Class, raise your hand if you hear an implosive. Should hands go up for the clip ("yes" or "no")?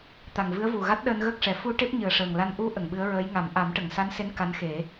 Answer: yes